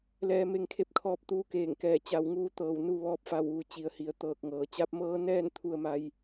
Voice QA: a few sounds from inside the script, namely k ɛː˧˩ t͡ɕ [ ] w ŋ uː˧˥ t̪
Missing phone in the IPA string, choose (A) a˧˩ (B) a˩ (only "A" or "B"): A